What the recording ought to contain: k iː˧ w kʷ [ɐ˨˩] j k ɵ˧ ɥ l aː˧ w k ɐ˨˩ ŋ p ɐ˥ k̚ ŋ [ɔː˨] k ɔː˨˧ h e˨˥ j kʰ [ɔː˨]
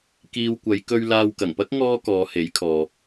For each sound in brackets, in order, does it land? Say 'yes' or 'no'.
no, no, yes

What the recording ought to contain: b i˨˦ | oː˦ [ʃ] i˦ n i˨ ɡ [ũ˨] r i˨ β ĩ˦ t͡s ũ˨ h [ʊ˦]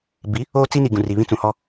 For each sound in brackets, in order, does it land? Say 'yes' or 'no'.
no, yes, no

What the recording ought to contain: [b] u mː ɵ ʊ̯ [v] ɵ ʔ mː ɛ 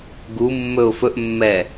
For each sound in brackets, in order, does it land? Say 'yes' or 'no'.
no, no

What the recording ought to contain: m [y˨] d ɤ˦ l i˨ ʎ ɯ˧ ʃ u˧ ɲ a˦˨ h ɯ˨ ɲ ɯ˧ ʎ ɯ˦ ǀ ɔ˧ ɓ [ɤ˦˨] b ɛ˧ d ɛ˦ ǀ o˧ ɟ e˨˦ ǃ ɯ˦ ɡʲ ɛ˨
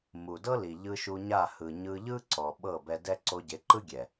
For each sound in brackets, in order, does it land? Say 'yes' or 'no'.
no, yes

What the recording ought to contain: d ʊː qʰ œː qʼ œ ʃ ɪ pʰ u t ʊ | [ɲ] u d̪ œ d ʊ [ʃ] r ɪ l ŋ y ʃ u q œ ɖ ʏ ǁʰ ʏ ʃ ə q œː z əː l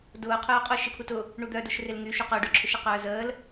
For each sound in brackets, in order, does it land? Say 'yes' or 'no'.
no, yes

